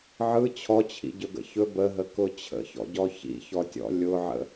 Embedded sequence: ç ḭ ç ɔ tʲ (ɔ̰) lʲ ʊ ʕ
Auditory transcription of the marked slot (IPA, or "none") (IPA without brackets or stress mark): ɔ̰